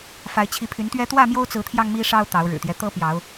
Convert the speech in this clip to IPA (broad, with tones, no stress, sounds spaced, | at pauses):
f a˨˦ ɪ̯ t͡ɕʰ i˨˦ pʰ y˨˦ n t̪ ɥ ɛ˦ t̪ w ä˥˨ m j o˦ ʊ̯ t͡s ɹ̩˨˦ t̪ʰ j ɑ˧ ŋ m i˦ ʂ ɑ˦ ʊ̯ t̪ ɑ˨˦ ʊ̯ ɻ ɻ̩˨˩ t̪ j ɛ˦ t̪ ɤ˦ p j ɑ˨˦ ʊ̯